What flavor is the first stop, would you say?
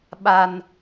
implosive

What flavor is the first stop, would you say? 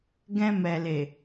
plain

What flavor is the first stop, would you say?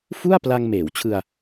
plain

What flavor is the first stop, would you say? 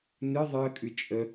ejective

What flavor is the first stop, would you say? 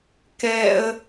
plain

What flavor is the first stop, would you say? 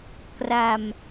plain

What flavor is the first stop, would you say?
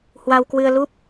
plain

